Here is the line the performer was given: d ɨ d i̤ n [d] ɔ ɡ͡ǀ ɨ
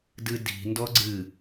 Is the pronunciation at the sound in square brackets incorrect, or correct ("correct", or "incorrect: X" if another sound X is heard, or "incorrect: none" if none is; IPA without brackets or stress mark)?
correct